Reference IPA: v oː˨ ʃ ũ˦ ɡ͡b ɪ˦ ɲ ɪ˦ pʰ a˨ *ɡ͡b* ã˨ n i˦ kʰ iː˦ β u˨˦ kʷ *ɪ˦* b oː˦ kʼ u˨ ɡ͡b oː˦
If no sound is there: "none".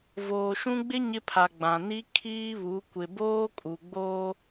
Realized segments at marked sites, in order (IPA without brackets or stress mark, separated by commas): ɡ͡b, ɪ˨